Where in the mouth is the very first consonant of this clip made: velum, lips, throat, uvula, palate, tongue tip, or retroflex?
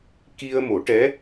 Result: velum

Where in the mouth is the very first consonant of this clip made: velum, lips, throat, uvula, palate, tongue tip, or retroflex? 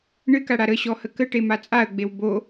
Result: retroflex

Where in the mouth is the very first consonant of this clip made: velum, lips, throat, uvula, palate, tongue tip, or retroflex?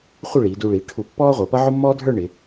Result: uvula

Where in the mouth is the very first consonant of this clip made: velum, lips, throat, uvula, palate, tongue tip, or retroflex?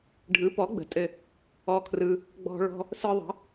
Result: retroflex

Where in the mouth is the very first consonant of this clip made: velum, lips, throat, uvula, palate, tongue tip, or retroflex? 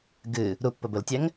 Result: velum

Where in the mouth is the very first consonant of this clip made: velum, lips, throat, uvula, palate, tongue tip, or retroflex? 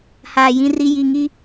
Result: throat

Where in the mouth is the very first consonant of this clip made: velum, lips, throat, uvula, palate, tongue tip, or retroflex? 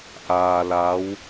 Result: throat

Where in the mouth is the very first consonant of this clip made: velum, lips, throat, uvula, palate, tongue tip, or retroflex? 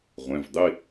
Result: uvula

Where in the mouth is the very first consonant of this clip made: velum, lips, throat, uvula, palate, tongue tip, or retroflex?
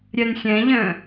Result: tongue tip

